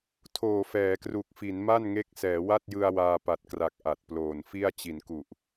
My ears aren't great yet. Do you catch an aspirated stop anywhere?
yes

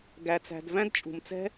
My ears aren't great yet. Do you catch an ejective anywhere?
yes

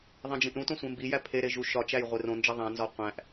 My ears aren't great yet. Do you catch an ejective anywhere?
no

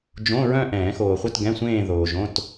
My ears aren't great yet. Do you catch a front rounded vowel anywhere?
yes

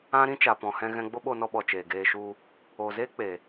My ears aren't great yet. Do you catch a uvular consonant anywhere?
no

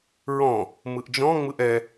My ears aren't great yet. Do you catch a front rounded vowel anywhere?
no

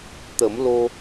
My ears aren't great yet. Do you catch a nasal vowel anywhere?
no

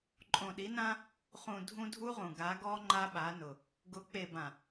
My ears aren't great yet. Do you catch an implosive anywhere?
yes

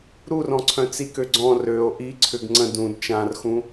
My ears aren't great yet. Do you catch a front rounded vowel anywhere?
yes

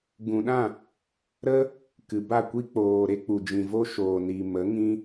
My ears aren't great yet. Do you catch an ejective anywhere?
no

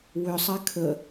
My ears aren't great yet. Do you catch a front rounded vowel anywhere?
yes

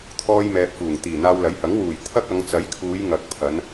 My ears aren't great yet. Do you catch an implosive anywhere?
no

